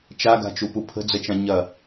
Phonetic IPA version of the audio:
t͡ʃaɡa̤t͡ʃupu pʰə̤d͡zət͡ʃã ɲɐ

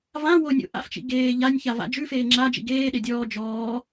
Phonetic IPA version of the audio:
vã wonʲo̰ ʔa̰ft͡ʃḭ ɡeː ʎanʲça va̰d͡ʒʉfeː ŋ͡ǁa d͡ʒḭɡeːɗe dʲɔː d͡ʒɔː

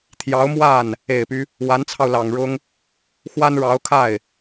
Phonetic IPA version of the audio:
t̪ʰjɑ˧˥ʊ̯mwa˥˩n | e˨˩ɪ̯py˦ | wa˧˥nt͡sʰɑ˧ʊ̯lɑ˨˩ŋɻʊ˥ŋ | xwa˥nɻɑ˧˥ʊ̯kʰa˥˩ɪ̯

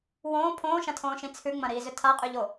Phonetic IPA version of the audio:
wõː pʰõːʃɐ̃tʰõːʃĩ t͡sʰʉŋ͡mɐ̃ɾiːzʏ tʰaqʼʉʎo

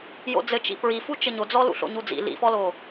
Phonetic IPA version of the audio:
jo̰d͡zɘt͡ʃḭ pɹifu t͡ʃɘɲod͡zɔ lṵɬo̰ɲud͡zḭ lḭfɔlo

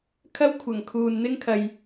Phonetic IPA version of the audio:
kʰɐ˥wkʷʰɐ˨˩ŋ kʰuː˨nn̪ɪ˥ŋ kʰɐ˧j

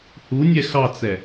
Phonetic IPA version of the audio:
hunʲɛ xɑt͡sɛ

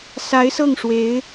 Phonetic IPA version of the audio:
sa˧˥ɪ̯ sɤ˥˩ŋʂwe˧˥ɪ̯

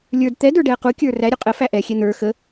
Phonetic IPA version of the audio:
lʲə˞d t̪ɛdə˞ɖɛə̯ qukʲə˞ ræɾʲu qʼəfæ ʔɛxʲɛ n̪ə˞ xə

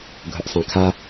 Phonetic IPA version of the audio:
ɡʱɵʔsˤẽkʰa

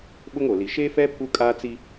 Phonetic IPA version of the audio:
ɓʊ˦ŋo˨li˨ ʃe˦fɛ˦ pʰu˦kʼa˦t͡si˦

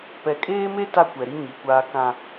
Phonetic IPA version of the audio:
pɛ˨kʼeː˦me˦ ta˦kʷɛ˨ɾi˦ ɲi˨kʷaː˦kã˦

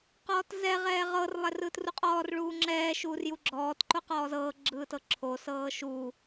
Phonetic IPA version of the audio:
qɔːtzɛ ʁɛːʁɤr lˠɛrɯːtruqʼɔːr ɭuːŋ͡ǁɛː ʃuːrjuɡ͡ǁɔːt ǃoqɔːzɤː ɡ͡ǁɯːtɤǁʰo sɤːʃu

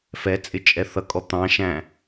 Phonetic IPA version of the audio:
fɛ t͡sʼɪt͡ʃʼɛθʌkʼɔ t̪ɑ̃ʃæ̃

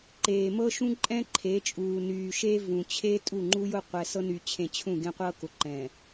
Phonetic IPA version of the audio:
ǃeː˨mɤ˦ʃũ˦ ǃʼɛ̃˦ǃʰe˨˦t͡ʃʼuː˨nyː˨ ʃe˦vũ˨ t͡ɕʰe˦ tʼu˦˨ŋ͡ǃu˦jʊ˦ qʷɛ˨sɤ˦ny˨t͡ɕʰẽ˨ t͡ɕʰũ˦˨ɡẽ˦qʷɤ˦ kʊ˨ ǃɛ̃˨

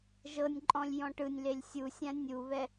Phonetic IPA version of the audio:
ʒɤnʲǃʼɔ̃lʲ jɔ̃ʈɯnʲlelʲ sʲusʲã nʲuβɛ

